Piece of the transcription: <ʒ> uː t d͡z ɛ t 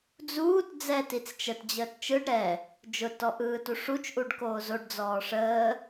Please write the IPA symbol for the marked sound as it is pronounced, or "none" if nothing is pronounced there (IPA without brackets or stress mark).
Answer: d͡z